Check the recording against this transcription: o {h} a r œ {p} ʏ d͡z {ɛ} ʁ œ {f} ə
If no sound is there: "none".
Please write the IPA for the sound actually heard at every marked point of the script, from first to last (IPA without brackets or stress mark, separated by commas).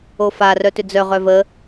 f, t, œ, v